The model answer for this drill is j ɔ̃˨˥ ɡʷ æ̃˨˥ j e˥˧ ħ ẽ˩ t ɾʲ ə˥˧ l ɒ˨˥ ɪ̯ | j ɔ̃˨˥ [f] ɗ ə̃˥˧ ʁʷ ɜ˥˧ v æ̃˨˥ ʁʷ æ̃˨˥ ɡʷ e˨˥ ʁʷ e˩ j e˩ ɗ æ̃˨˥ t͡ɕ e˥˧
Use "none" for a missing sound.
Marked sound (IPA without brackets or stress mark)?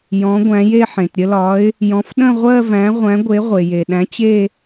f